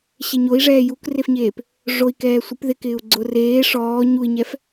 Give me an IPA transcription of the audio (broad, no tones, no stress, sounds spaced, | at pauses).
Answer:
ɕ e ɲ o i̯ ʐ ɛː j u k r e f ɲ eː p | ʐ o i̯ k ɛː sʷ ɪ p ð ɪ k ɪː u̯ ɡ͡ǀ ʊ r eː ʂ ɔː ɲ u i̯ ɲ ɛ f